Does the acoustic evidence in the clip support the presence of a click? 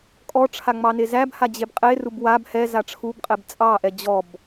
no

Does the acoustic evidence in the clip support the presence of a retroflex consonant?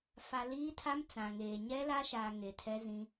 no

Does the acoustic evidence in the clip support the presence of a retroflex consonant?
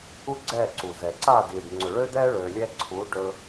yes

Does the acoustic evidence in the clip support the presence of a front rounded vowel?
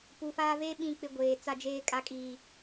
no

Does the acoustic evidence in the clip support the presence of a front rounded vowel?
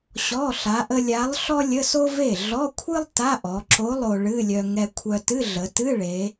yes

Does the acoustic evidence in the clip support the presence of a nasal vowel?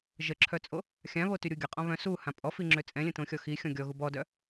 yes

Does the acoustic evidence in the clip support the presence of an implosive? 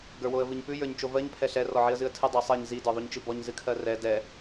no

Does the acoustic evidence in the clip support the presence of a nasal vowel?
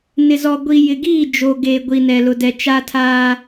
no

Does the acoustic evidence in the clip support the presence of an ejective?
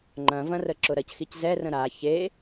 no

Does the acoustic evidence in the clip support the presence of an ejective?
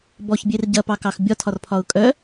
yes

